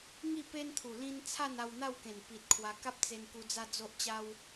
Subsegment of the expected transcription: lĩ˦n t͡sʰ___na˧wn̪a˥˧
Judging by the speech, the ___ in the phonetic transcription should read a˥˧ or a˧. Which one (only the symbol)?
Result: a˥˧